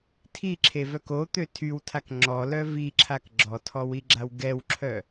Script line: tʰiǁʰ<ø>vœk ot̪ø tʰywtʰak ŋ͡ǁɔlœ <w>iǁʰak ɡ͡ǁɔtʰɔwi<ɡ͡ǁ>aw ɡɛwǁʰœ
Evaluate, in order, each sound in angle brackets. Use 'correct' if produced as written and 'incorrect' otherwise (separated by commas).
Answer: incorrect, incorrect, correct